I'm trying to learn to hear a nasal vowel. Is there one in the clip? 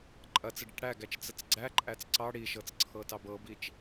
no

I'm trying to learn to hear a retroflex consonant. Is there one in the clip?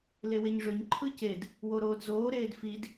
yes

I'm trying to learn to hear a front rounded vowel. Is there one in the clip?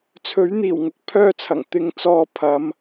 yes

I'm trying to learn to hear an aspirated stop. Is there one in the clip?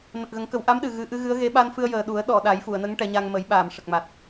no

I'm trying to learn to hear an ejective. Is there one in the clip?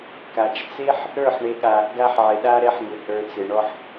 no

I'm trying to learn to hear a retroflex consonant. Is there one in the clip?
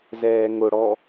yes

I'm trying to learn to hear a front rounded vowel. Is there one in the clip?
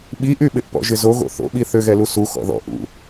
yes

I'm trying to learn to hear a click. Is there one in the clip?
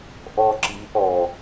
yes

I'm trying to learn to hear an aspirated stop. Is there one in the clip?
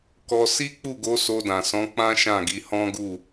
no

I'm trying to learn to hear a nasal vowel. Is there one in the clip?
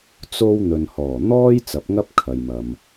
no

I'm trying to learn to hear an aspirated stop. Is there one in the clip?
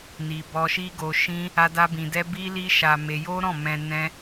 no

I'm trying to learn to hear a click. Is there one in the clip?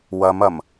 no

